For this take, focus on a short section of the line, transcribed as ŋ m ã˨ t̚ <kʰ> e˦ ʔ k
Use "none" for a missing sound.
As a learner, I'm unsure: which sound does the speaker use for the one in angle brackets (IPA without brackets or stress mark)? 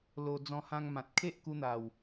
kʰ